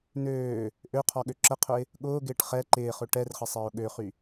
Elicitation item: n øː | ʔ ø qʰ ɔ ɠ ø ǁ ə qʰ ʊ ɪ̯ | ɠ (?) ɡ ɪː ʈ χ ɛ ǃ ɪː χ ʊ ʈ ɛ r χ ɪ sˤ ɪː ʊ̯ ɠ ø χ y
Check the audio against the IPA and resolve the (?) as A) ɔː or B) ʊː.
B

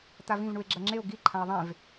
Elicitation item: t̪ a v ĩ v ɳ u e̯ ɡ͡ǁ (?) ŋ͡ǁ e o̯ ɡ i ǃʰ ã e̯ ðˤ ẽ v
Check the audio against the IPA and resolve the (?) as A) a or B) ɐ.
B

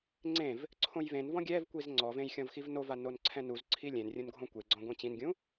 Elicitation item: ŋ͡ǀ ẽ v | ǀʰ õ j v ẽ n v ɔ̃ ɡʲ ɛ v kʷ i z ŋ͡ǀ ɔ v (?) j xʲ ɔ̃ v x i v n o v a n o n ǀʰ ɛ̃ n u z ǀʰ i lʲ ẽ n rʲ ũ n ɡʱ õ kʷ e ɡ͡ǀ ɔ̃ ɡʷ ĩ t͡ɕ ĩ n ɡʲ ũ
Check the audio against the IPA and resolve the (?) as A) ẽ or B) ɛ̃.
A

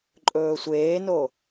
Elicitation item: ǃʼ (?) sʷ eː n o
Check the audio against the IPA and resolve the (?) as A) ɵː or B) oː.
A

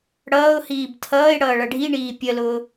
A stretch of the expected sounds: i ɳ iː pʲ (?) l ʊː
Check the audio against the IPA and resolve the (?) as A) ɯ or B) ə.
B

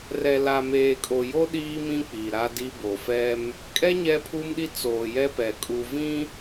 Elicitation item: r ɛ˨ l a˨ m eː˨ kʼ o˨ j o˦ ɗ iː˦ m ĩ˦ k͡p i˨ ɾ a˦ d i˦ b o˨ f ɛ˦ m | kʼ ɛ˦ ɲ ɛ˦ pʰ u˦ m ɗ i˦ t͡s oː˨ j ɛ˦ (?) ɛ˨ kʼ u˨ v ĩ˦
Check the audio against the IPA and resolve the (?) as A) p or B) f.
A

